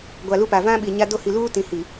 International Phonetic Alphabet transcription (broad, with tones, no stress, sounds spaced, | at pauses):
ɡʷ a˨ l u˦ p a˨ v ã˦ ɓ i˨ ɲ a˦ d o˦˨ h i˨ l uː˦ t ĩ˨ h i˨